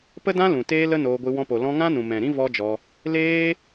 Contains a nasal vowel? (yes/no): yes